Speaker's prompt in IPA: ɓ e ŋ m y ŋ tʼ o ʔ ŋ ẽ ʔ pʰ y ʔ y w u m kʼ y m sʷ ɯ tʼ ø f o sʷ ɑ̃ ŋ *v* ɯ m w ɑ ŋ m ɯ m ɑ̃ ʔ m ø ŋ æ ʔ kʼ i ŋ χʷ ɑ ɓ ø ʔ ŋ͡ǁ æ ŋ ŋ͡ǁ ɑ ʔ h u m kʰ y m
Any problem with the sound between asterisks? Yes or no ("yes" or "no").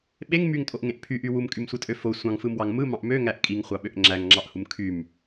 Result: yes